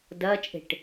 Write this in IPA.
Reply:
d ɐː t͡ʃʼ e̤ ʈ

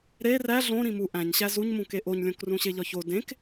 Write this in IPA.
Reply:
ɾ e r æ ɮ õ ɾ ĩ m u ʔ æ̃ ɲ ɕ æ z u ɲ m ũ k e ʔ o ɲ lʲ õ k r ũ ɕ e ʎ ɒ ç o d ẽ k

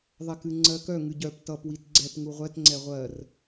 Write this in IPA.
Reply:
ðˤ ɛ k ɨ ŋ͡ǀ ɜ k œ ŋ ɨ ɟ œ p t ʌ p w i t ɡ͡ǀ ɛ p ŋ u ʁʷ ɛ t ŋ͡ǀ ɛ ʁʷ ɜ r

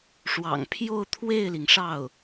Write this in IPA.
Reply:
ʂ w ɑ̰˨˩ ŋ pʰ j o˥˧ ʊ̯ t̪ʰ w e˥˩ ɪ̯ l i˩ ŋ ʂ ɑ˥˩ ʊ̯

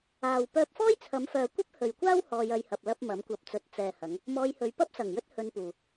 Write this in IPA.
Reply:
aː˨ w p œː˧ p̚ f ɔː˥ j t͡sʰ ɐ˨˧ m f œː˨ kʷ ɐ˥ p̚ h ɵ˨ ɥ kʷ aː˥ w h ɔː˧ j ɐ˧ j h ɐ˨ p̚ l ɐ˧ p̚ m ɐ˨˥ m kʷ ɐ˧ p̚ t͡s ɵ˧ t̚ t͡s ɛː˨ h ɐ˨˧ ŋ | m ɔː˧ j h ɵ˨˧ ɥ p ɐ˥ p̚ s ɐ˨˩ ŋ j ɵ˥ t̚ h ɵ˧ n p uː˨

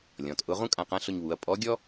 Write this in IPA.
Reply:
lʲ ɔ̃˩˧ t ʔ ʊ˧˥ ʁ ũ˥ kʼ ã˧ q ã˧˥ ɬ ʊ˧ ɲ β u˩˧ ɐ̯ pʼ ɔ˧˥ ɡʲ ɔ˥

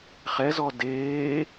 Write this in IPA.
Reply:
χ ɛ z ɔ d eː

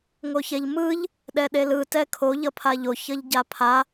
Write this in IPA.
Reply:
ŋ o ç ɛ ʎ m ɯ ʎ | ɗ ɛ ɗ e l ɯ t ɛ kʰ o ʎ ʌ pʰ a ʎ o ç ʌ ʎ ɟ a pʰ a

